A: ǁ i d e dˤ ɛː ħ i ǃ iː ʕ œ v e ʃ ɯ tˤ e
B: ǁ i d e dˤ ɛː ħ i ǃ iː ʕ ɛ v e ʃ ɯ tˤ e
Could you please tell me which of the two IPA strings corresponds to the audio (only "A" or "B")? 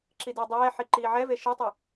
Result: B